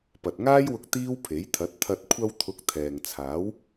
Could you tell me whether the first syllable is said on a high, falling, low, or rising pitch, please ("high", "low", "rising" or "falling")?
low